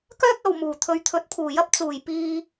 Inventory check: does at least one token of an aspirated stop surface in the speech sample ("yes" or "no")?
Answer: yes